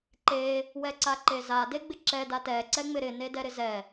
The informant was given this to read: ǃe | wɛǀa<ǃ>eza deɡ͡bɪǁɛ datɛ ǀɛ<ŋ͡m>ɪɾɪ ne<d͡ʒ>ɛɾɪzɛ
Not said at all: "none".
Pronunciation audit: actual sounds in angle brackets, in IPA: ǃ, ŋ͡m, d

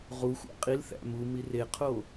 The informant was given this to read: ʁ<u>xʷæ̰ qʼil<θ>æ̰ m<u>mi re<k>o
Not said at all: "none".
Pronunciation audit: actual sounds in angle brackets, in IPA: u, θ, u, qʰ

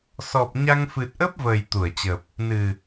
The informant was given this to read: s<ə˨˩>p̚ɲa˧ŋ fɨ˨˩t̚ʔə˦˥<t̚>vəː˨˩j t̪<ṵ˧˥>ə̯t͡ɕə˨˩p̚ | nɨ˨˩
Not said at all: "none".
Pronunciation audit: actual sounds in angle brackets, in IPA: ɔ˨˩, p̚, u˧˩

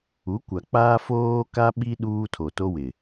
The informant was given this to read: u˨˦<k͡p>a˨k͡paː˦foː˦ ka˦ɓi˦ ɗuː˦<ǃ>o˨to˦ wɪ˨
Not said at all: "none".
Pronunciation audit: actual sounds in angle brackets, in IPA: kʷ, tʰ

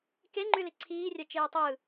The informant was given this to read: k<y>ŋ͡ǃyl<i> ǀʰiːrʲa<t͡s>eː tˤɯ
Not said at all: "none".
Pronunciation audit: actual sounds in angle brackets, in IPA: e, i, t͡ʃ

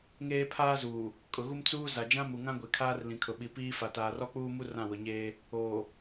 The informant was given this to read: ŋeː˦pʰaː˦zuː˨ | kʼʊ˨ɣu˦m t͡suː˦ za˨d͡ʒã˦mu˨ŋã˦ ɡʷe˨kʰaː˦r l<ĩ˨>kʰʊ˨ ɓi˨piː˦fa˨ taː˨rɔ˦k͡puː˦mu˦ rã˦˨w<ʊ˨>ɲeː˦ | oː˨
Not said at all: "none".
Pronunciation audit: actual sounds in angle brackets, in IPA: ĩ˨, ʊ˨

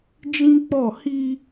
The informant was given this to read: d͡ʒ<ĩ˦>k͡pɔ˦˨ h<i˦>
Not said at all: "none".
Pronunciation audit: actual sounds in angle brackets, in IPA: ĩ˦, i˦

